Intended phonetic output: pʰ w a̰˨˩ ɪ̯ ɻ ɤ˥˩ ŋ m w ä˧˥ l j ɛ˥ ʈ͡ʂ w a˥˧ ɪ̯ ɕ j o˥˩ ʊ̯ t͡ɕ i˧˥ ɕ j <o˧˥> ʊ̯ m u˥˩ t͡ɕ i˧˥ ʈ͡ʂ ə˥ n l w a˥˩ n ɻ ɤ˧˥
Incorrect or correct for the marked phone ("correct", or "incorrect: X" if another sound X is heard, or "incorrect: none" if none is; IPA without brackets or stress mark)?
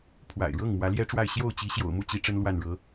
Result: incorrect: o̰˨˩